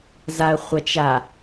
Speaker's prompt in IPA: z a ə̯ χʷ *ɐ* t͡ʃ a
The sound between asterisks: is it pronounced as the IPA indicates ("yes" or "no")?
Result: yes